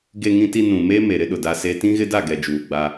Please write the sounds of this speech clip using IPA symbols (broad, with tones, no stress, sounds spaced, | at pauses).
ɡ e˨ ŋ ĩ˨ t i˨ n ũ˨ m eː˦ m e˨ ɾ ɪ˦ ɗ ʊ˨ d a˦ s e˦ t ĩ˦ ɣ ɪ˦ d a˦˨ ɡ ɛ˨ d͡ʒ uː˨ ɡ͡b a˦